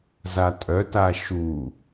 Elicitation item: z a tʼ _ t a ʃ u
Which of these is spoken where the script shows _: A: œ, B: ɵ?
A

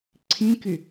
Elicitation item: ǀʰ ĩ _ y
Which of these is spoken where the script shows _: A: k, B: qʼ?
A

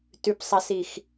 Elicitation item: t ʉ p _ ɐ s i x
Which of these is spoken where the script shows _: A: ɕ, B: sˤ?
B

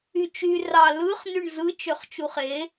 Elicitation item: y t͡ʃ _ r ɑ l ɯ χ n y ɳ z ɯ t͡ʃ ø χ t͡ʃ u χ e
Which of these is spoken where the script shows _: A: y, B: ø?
A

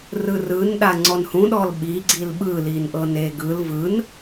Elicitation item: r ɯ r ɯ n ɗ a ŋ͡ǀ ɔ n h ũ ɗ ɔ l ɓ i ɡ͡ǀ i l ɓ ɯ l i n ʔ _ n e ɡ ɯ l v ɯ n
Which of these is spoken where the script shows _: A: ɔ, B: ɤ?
B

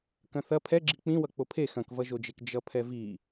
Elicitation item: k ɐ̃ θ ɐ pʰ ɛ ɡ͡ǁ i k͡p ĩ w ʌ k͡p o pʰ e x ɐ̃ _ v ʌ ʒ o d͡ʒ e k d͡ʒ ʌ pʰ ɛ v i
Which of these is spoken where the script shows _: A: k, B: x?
A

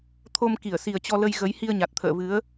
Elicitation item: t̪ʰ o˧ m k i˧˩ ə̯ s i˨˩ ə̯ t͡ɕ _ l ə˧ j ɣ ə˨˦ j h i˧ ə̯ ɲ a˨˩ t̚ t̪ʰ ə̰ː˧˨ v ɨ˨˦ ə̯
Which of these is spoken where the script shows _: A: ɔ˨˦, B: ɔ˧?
B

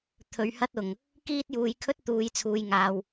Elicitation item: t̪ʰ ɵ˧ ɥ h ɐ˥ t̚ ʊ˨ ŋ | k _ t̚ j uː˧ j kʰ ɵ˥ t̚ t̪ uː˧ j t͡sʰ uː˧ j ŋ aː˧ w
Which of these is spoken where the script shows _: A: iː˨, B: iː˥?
B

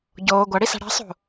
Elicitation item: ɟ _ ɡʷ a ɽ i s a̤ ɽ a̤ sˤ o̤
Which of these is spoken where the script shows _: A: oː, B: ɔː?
A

